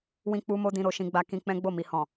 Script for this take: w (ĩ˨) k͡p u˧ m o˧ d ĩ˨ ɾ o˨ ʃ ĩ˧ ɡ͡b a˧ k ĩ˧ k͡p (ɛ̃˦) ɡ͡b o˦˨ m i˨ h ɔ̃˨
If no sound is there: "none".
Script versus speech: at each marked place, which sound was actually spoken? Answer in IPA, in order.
ĩ˧, ɛ̃˦

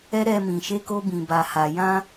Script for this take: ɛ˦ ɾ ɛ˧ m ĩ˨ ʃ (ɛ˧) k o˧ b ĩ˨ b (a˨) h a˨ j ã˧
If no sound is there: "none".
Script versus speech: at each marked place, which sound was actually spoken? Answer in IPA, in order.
e˧, a˨

